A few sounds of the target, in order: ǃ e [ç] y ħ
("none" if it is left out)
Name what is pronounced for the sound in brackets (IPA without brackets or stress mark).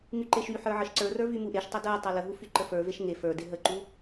ʃ